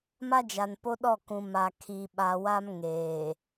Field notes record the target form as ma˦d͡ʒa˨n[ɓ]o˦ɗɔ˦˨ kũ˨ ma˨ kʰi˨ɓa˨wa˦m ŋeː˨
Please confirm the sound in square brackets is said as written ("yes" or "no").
no